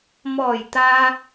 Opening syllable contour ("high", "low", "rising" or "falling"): low